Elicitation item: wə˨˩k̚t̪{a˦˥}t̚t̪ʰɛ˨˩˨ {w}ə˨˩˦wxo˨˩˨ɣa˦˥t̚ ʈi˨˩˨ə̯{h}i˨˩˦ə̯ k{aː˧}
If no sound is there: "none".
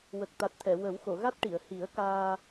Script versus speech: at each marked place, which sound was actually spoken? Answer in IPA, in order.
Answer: a˨˩, w, h, aː˧

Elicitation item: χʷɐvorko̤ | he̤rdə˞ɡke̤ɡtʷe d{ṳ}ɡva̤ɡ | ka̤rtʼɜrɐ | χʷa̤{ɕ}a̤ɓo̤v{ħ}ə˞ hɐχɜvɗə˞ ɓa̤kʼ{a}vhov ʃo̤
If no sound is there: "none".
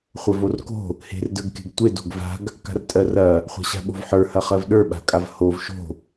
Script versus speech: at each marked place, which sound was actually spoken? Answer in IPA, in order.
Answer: o̤, ɕ, ħ, a

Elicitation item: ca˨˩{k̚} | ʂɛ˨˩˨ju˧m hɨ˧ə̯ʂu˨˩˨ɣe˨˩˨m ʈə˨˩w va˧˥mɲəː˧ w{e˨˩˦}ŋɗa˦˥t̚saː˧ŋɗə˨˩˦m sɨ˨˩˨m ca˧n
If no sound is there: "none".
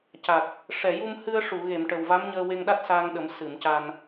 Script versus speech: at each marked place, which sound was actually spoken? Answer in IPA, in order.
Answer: k̚, e˧

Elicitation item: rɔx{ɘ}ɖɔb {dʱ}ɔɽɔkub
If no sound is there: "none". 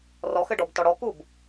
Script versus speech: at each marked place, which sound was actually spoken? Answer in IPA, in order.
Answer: ɘ, t

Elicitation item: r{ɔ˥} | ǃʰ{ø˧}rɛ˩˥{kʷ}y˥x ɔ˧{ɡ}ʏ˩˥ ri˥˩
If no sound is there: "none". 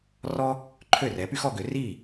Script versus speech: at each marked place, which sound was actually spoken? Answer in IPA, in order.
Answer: ɔ˥, ø˥˩, p, ɡ

